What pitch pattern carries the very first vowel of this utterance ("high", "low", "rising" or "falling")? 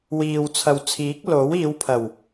low